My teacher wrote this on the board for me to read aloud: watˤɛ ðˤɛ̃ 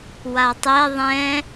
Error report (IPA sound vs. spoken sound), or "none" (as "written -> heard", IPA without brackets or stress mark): none